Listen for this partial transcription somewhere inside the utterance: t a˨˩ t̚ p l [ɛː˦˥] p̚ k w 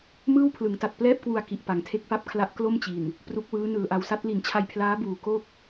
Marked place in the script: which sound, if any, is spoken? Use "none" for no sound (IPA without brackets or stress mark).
ɛː˥˩